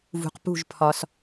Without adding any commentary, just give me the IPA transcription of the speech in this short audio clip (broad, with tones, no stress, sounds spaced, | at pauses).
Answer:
v ṳ˨ q p ṳ˦˨ ʒ pʰ ɒ˧ s